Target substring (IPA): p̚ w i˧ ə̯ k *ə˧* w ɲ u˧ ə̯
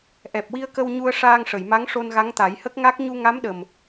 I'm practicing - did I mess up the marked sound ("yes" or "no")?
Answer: no